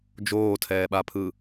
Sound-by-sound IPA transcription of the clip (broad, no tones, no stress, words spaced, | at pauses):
d͡ʒoːtʰɛːɓapʰɯ